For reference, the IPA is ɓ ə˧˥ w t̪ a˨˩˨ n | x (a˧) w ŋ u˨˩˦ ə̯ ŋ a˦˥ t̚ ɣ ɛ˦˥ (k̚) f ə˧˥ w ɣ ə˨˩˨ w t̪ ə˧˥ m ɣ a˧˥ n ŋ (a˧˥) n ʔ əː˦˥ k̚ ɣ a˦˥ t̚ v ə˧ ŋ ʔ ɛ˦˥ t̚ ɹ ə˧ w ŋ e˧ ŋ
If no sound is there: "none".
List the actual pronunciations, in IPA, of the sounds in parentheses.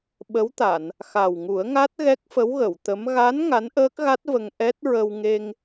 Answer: a˨˩, k̚, a˧˥

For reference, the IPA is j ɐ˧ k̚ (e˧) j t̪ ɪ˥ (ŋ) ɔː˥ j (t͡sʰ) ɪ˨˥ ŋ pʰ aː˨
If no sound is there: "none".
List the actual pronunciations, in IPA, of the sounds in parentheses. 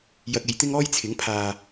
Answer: e˨˧, ŋ, t͡sʰ

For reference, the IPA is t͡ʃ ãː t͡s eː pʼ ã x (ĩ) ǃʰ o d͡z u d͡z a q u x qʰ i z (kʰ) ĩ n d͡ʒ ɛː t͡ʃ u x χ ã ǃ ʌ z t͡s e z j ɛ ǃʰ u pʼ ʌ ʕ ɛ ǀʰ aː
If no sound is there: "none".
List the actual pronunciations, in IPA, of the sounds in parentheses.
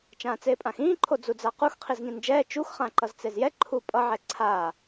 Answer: ĩː, ŋ

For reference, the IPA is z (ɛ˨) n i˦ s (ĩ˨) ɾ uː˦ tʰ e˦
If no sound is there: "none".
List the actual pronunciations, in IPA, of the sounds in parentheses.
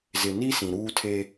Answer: ɪ˨, ĩ˨

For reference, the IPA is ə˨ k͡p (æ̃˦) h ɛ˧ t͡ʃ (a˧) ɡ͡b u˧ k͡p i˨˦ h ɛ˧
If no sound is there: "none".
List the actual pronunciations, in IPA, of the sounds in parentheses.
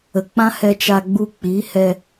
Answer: ã˦, a˧

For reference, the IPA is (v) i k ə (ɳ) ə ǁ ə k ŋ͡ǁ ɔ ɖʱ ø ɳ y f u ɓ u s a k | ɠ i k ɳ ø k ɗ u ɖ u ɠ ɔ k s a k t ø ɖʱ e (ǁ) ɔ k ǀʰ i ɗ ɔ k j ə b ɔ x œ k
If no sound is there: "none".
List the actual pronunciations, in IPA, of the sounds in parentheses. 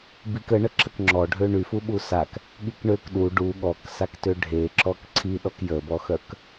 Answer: b, ɳ, ǁ

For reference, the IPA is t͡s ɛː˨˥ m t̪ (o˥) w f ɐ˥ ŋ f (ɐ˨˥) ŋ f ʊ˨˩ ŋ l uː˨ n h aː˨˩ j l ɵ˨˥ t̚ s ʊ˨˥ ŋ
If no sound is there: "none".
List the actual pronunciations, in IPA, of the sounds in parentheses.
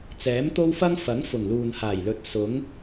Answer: o˥, ɐ˨˥

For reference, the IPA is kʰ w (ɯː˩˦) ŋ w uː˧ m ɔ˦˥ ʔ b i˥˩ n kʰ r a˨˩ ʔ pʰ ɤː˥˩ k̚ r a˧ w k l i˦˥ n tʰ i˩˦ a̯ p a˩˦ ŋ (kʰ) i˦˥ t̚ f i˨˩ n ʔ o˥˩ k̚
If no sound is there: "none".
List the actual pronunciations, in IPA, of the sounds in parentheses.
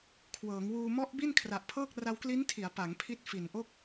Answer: ɤː˩˦, pʰ

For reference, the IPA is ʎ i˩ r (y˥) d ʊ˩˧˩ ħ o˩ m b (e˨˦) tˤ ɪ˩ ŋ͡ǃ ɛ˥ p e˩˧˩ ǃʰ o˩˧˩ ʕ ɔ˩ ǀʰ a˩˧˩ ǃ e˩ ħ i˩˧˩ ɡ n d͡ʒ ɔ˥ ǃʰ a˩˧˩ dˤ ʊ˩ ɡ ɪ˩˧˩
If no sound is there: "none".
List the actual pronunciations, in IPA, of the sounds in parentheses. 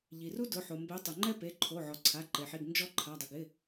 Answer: u˥, e˨˦

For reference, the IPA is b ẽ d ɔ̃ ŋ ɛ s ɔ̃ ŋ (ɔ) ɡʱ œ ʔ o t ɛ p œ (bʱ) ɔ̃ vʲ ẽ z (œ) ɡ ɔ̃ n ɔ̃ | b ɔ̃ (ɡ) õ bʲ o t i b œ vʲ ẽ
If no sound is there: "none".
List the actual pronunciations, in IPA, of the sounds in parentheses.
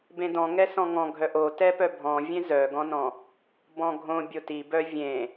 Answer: ɔ̃, bʱ, œ, ɡʱ

